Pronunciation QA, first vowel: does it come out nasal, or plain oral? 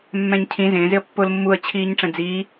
nasal